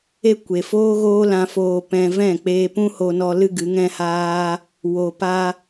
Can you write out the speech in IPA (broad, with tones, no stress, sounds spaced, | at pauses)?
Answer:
e˦ kʷ e˨ f oː˦ ɣ oː˦ l ã˧ f oː˧ p ɛ̃˧ v ɛ̃˦˨ k͡p eː˧ p ũ˦ h o˧ n ɔ˧ l ɨ˦ ɡ ɨ˨˦ ŋ ɛ̃˦ h aː˦ | w o˨ p a˧